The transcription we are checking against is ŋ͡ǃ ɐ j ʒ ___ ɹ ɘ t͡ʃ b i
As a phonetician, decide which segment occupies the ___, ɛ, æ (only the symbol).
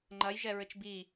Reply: ɛ